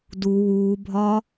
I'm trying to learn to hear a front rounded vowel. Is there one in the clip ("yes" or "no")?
no